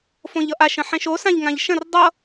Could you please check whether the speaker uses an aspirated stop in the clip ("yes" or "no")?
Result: no